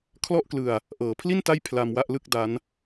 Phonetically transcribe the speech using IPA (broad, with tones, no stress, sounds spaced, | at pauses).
kʰ l ɔ˥˩ ʔ k l ɯ˧ a̯ | ʔ ɤː˩˦ pʰ l i˥˩ n t a˥˩ j pʰ l a˧ m w a˥˩ ʔ l ɯ˥˩ k̚ d a˦˥ n